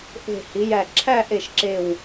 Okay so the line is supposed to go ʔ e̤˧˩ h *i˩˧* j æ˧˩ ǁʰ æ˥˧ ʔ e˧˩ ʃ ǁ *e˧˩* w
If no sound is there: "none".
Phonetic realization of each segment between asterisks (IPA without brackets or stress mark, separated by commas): i˩˧, e˧˩